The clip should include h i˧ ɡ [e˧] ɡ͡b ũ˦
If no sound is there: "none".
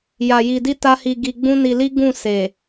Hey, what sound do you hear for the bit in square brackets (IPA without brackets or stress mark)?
i˧